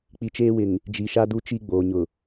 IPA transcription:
k͡pi˨t͡ʃeː˦wɪ˨ŋ | d͡ʒi˨ʃa˦ du˦t͡ʃi˦ɡ͡boː˨ɲʊ˨

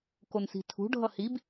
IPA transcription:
konsi̤tʰṳ ɖʱʌhib

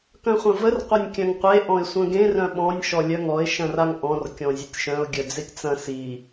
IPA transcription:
kœ̃χʷɐ̃vər qʷɐnʲkʲœ̃ŋqʷe ʔɔ̃ɪ̯sʷœ̃ɡẽr œ̃ɓɔ̃nʲ ʃɔlʲœŋɔɪ̯ ʃɐ̃raŋʔɔ̃r kʲɔ̃zʲətʲʃœ̃ʊ̯ ɡʲœd͡zetʲt͡sɐ̃ si

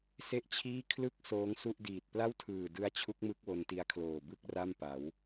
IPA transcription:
se˥˩ʔt͡ɕʰiː˥˩ kʰlɯ˥˩k̚ soː˦˥ŋsu˥˩ʔdiː˨˩t̚ pla˥˩wtʰɯː˨˩dɯ˦˥a̯ t͡ɕʰu˦˥k̚mɯ˦˥k̚ wo˧nti˧a̯kʰloː˨˩ bɯ˥˩k̚ra˥˩mpa˩˦w

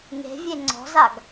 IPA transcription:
ŋe̤vʲe ŋ͡ǀɔ̤zaɡ

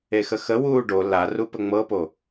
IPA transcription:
exəxə wuːɖo larupə ŋ͡mɤpo

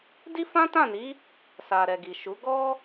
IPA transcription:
di˦fã˦tã˦˨ni˨˦ | sa˨ɾɛ˨ ɡi˨ʃu˨˦ ɡɔ˦

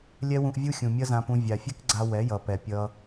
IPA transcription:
lʲɛ˦wũ˧ʔvʲu˦xʲũ˨ mʲʌ˦zã˧pũ˧ vʲa˨fʲɛ˦kɡ͡ǀa˧ wɛ˨˦jʌ˨pɛ˨ pʲʌ˧

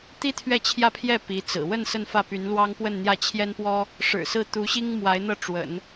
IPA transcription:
t̪i˥t̪ʰɥɛ˥˧t͡ɕʰjä˥˧pʰjɛ˥˩ pi˧˥t͡sɹ̩˨˩ wə˥˧n sə˥˧nfä˥˩py˧˥nlwɑ˥ŋ pwə˥˧nn̪jä˥˩t͡ɕʰjɛ˥npwɔ˥ | ʂɻ̩˨˩sɹ̩˥˩ t̪u˧˥ɕi˥ŋ mwa˧˥ɪ̯n̪ɤ˥˩ ʈ͡ʂwə̰˨˩˦n

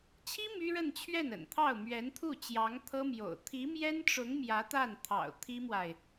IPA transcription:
t͡ɕʰi˥ my˥ɻə˥˧n t͡ɕʰɥɛ˥˩nə̰˨˩nt̪ʰɑ˥˩ʊ̯ mɥɛ˧˥nt̪ʰu˥˩ t͡ɕjɑ˧˥ŋt̪ʰɤ˥mjo̰˨˩ʊ̯ t̪ʰi˧˥mjɛ˥nʈ͡ʂʊ˧˥ŋ mjä˧˥t̪a˥˩nt̪ʰɑ̰˨˩ʊ̯ t̪ʰi˥mwa˨ɪ̯

